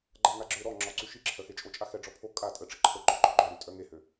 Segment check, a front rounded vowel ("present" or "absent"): present